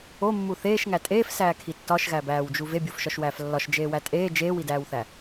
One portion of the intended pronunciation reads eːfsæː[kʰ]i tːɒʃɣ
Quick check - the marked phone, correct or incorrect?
correct